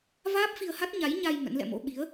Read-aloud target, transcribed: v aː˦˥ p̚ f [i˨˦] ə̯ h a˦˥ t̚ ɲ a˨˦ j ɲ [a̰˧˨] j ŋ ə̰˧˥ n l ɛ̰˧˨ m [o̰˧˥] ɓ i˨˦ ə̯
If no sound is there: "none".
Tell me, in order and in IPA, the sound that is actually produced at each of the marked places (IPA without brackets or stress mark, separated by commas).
i˧, a˧, o̰˧˥